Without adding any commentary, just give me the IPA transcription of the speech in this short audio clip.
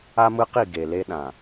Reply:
a˦ m ɯ˦ q i˦˨ ɡ e˨ l e˦ ɗ ã˨

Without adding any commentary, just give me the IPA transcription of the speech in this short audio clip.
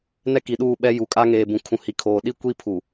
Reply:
n ɛ˦ k i˨ ɗ uː˦˨ ɓ ɛ˦ j u˨ kʼ a˦ ŋ eː˨ b ũ˨ kʰ ũ˨ h i˨ kʰ oː˨ ɗ i˦ kʷ i˦ pʰ u˨

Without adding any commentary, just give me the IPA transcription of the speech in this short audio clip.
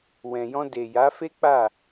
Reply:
w ɛ̃˨ j ɔ̃˧ d e˨ j a˨˦ f e˦ k͡p a˦˨

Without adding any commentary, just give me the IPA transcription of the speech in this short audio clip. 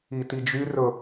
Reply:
i t i d͡ʒ y r ɵ

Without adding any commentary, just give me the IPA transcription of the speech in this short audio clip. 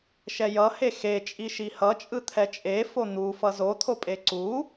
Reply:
ʃ ɛ j ʌ h e x e t͡ʃʼ i ʃ i h ʌ t͡ʃʼ ɯ t̪ʰ ɛ t͡ʃʼ e f o n̪ u f ʌ z o t̪ʰ o pʼ e ǀ u

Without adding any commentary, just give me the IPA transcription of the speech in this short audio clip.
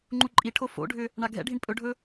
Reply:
ŋ͡ǃ u ǃʼ i ʈʰ o f o̰ ɖʱ ʏ | ɳ a ɡʱ ɛ̰ ɖʱ i ɳ pʼ ɵ ɖʱ ɵ

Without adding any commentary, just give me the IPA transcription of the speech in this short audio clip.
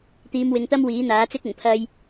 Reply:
t̪ iː˨˧ m w ɪ˨ ŋ t̪ ɐ˥ m w iː˨˥ n̪ aː˨˥ t͡s ɪ˥ k̚ ʊ˨˩ ŋ pʰ ɐ˥ j

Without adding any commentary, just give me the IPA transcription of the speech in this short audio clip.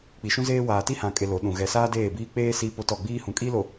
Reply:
k͡p i˨ ʃ ũ˦ z eː˦ w aː˨ t i˦ h ã˨ kʼ e˨ l o˨˦ ɗ ũ˨ ɣ ɛ˨ s aː˦ d eː˦˨ b iː˦ k͡p eː˦ s iː˦ p o˦ t ɔ˦˨ ɡ͡b iː˦ h ũ˨ kʼ i˦ l o˨

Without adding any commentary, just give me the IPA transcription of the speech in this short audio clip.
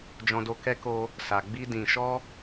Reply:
d͡ʒ ɔ̃˧ d o˧ k ɛ˦ k o˧ | s a˨ ɡ͡b i˧ d ĩ˨ ʃ ɔ˧

